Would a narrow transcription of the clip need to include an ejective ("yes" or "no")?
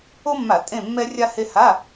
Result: yes